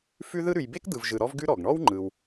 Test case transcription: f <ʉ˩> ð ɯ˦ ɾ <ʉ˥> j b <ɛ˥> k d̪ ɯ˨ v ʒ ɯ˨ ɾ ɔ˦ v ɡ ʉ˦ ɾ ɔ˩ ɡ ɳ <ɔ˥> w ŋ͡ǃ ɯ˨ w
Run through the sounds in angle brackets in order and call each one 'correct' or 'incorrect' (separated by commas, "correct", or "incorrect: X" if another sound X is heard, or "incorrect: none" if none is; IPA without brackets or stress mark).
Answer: incorrect: ʉ˦, incorrect: ʉ˨, incorrect: e˥, correct